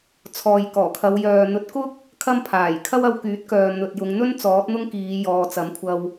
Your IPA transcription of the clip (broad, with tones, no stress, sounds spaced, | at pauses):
t͡sʰ ɔː˨ j k ɔː˨˩ kʰ ɐ˨˧ w j œː˨ n̪ ɵ˨˥ t̚ k ʊ˥ k̚ | kʰ ɐ˥ m pʰ aː˨˩ j kʰ ɐ˥ w ɐ˧ w k yː˨˥ t̚ k œː˨ n̪ ɵ˨ t̚ j ʊ˨˧ ŋ n̪ ɵ˥ n t͡s ɔː˨˥ t̚ n̪ ʊ˥ ŋ k iː˨˧ j ɔː˨ t͡s ɐ˨˥ m kʷʰ ɐ˧ w